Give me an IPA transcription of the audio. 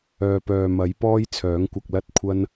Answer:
œː˨ p œː˨ m ɐ˨˥ j p ɔː˥ j t͡sʰ œː˨˥ ŋ kʷ ɐ˧ k̚ l ɐ˥ t̚ kʷʰ ɐ˥ n

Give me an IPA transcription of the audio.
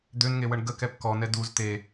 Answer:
d̪ ø n ŋ e w ə ɳ ɡ ə k ɛ p k ɔ n ɛ d u z t̪ e

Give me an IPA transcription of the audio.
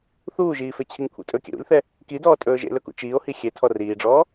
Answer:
θ uː ʒ iː f e t͡ɕʰ i ŋ kʷʰ ḭ tʼ ɵ kʲ ɛ̰ ɾ ṵ lʲ θ ɛ | k i d ɔː tʼ ɵː ʒ ḛ l ɵ k ṵ t͡ʃ iː o̯ h i xʲ e tʰ ɔ r iː ɖ͡ʐ ɔː

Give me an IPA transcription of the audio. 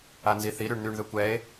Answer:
a n z i θ i ɾ y ɳ n̪ y ɳ ð ø kʷ ɛ e̯

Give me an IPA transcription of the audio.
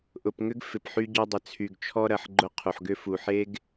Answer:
ʔ ʊ˨ p ŋ ʏ˦ ɡ f ɪ˨ p ħ y˦ ɟ ɔ˦ dˤ ə˨ t͡sʰ y˨ ɡ t͡ʃʰ ɔ˦ ɾ ɐ˨ ħ ɡ͡ǃ ʊ˦ qʰ u˨ ħ ɡ ʏ˦ f u˨ ħ e˦ ɡ

